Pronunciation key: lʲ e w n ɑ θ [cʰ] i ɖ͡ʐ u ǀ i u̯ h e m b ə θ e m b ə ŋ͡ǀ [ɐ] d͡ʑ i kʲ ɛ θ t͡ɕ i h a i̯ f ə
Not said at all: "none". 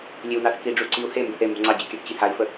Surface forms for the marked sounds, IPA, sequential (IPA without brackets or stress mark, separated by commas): k, ɑ